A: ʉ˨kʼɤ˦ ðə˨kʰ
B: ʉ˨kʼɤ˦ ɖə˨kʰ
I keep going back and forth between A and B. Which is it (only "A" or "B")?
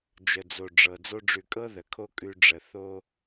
A